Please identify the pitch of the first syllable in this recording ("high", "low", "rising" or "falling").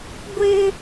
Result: high